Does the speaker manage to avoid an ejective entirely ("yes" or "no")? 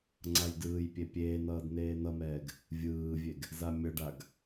yes